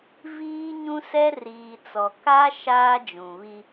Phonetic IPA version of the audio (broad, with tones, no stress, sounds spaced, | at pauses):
v iː˦ ɲ ũ˦ s ɛ˦ r iː˨ t͡s ɔ˨ k a˦ ʃ aː˦ d͡ʒ ũ˨ β i˦